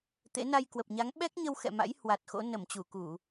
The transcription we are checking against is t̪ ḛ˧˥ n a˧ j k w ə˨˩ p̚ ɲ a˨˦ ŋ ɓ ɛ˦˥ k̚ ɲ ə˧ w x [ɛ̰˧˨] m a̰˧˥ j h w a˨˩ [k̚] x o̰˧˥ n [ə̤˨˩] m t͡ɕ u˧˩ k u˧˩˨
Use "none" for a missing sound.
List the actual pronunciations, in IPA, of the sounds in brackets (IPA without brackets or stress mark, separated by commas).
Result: ɛ̰˧˨, t̚, ə˧˩